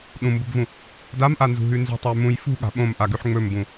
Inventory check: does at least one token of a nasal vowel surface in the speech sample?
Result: yes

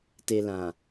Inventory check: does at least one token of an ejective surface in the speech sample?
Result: no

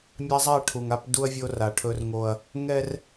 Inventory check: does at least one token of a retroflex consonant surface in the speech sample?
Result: yes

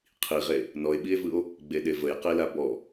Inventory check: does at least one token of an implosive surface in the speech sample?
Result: yes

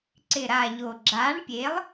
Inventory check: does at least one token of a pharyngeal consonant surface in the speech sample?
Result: no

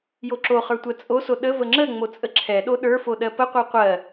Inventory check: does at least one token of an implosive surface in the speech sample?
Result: yes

